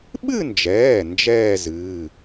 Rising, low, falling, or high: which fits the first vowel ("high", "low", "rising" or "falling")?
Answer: falling